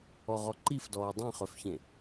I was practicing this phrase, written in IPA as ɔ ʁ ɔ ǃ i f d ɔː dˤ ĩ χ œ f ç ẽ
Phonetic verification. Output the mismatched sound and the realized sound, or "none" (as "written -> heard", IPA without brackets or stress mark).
none